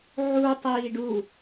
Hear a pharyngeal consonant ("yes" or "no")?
yes